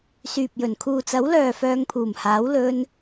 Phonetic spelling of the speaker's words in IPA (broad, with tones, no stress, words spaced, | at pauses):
syː˨p̚jɵ˨˩n kʰuː˨t͡sɐ˨˥w lœː˨ fœː˧ŋpʰuː˨˩mhaː˨˥w lɵ˧n